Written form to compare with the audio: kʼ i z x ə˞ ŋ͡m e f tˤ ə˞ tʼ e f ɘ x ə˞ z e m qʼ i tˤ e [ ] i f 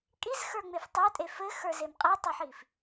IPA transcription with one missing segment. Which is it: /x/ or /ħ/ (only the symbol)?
ħ